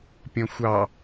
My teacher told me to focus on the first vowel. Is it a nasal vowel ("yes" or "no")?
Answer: yes